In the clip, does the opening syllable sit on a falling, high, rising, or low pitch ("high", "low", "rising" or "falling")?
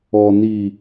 low